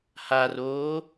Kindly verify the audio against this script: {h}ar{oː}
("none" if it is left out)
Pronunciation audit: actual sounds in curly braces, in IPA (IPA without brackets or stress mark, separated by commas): h, oː